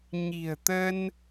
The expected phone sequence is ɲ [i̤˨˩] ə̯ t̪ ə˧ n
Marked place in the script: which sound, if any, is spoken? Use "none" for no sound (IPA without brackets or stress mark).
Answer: i̤˨˩